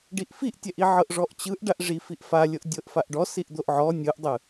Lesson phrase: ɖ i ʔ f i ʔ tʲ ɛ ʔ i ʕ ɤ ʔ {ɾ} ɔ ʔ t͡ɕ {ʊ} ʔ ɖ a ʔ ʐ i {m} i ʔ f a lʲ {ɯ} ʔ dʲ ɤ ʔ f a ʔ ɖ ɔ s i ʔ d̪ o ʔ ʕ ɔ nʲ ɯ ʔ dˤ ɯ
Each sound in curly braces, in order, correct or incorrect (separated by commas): incorrect, incorrect, incorrect, incorrect